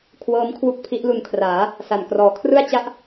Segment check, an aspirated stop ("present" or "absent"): present